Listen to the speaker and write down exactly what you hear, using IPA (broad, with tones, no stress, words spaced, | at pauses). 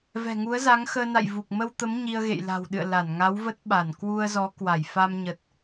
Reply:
vɛ̤˨˩ŋu˨˦ə̯za˨˦ŋ xəː˧na̰˧˨jvu˨˩k̚ mə˧wt̪ə˨˦m ɲi˧ə̯ɣḛ˧˨jla̤˨˩wɗɨ̰˧˨ə̯ la˧˩nŋa˨˦wvə˦˥t̚ ɓa˧˩n kwu˧ə̯zɔ˨˦ kwa˧˩j fa˧mɲə˨˩t̚